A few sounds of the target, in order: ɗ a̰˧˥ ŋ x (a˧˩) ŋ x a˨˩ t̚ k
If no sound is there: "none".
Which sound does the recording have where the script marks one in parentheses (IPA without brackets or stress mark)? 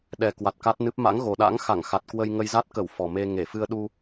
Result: a˧˩